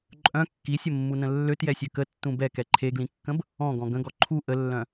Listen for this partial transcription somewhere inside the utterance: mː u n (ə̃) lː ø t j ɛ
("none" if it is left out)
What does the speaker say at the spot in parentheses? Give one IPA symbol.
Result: ə̃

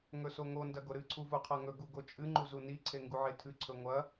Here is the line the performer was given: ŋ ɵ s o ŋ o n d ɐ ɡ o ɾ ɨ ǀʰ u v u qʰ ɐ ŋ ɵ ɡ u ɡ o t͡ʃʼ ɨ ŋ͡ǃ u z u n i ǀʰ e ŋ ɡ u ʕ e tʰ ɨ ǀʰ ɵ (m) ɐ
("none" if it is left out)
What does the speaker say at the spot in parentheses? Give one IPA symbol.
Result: ŋʷ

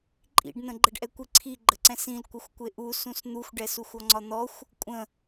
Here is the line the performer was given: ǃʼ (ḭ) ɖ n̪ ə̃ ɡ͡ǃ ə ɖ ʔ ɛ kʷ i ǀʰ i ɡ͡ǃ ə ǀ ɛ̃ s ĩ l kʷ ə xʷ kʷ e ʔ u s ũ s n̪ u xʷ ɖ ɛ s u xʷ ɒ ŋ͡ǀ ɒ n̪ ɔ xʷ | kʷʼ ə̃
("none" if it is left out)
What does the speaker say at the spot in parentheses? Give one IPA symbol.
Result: ḭ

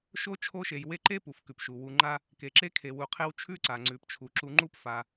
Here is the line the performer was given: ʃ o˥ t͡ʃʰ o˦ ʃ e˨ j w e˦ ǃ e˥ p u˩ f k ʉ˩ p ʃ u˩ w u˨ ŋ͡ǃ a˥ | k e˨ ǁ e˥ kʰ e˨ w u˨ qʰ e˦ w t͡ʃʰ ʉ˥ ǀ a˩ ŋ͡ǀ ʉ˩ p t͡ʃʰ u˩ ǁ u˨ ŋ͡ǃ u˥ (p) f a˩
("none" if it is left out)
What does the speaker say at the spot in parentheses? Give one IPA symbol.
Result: p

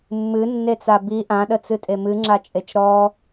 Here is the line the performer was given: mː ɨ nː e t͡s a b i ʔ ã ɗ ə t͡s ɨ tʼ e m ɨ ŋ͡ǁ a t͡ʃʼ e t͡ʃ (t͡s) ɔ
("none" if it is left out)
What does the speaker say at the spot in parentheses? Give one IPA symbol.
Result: ɾ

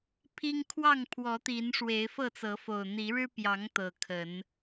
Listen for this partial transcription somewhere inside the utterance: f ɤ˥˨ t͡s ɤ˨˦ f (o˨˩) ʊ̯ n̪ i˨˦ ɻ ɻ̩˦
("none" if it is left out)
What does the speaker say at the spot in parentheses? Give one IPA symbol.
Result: o˨˩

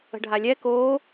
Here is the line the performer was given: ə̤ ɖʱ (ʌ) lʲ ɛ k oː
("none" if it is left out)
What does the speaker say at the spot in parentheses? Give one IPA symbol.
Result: a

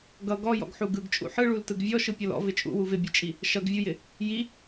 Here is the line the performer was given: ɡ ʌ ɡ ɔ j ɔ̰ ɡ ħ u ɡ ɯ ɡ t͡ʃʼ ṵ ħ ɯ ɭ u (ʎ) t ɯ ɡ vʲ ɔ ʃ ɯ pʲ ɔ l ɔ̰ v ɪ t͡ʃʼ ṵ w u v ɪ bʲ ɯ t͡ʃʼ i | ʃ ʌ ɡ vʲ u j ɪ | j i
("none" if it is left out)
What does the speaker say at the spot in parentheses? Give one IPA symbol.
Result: l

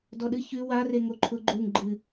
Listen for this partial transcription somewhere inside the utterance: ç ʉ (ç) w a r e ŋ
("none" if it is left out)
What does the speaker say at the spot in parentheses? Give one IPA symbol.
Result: none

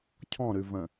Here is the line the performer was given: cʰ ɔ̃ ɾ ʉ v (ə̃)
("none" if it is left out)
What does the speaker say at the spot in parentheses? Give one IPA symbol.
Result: ə̃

